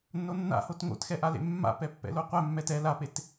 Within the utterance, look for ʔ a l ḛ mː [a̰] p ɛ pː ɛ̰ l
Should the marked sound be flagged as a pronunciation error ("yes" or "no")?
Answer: no